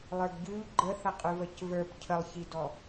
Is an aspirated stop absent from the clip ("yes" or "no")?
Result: no